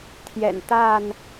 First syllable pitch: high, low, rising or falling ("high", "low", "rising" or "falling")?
low